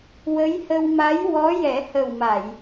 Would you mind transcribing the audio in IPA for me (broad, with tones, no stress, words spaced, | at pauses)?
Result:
wə˧˥jhə˧w ma˧˥jwɔ˧˥ jɛ˨˩˦hə˨˩wma˨˩˨j